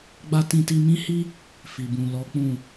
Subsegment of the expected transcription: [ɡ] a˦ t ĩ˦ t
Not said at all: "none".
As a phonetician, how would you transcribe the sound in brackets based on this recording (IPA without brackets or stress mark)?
ɡ͡b